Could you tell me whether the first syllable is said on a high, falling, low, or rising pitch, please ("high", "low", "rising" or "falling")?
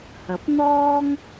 rising